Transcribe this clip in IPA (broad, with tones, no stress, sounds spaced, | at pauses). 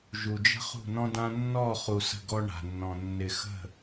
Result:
ʒ u˨ d͡ʒ ə̤˦ χ ṳ˦˨ n ɔ̃˦ d ã˦ nː ɔ˦˨ χ u˨ s ə̤˦˨ ɡ ɔ˦ ɳ a̤˨ nː ɔ̃˨ nː ɪ˨ x ə̤˦˨